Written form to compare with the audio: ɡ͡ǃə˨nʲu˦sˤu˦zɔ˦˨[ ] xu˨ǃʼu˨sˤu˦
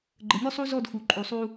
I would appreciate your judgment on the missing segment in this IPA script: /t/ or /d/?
d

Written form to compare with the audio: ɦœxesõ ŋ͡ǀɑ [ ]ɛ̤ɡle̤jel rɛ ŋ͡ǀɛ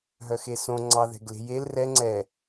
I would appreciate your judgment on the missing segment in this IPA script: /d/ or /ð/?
ð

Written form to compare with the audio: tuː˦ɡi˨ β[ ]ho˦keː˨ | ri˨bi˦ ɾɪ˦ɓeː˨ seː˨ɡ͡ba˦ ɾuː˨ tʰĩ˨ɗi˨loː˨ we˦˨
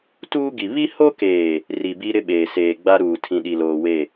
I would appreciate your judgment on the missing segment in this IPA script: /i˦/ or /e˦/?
i˦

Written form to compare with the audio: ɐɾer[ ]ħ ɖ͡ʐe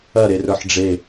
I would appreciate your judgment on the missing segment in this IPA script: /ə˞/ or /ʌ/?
ə˞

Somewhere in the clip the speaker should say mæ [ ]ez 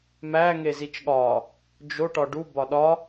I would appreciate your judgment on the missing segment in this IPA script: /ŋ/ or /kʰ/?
ŋ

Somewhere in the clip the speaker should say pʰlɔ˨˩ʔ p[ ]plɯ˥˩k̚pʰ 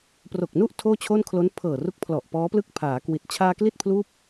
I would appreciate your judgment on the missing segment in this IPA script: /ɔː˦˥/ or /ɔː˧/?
ɔː˦˥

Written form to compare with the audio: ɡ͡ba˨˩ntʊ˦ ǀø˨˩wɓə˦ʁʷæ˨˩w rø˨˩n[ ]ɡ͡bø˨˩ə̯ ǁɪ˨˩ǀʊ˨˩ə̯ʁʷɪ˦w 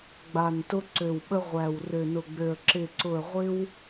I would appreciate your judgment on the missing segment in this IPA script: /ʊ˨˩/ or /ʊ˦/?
ʊ˨˩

